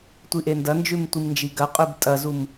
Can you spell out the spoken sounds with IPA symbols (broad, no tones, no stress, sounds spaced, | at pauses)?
tʷ i ʔ e n d ɐ n d͡ʒ ʉ m tʷ i m n d͡ʒ i ɡ ɐ qʼ ʉ b tʼ ɐ z u m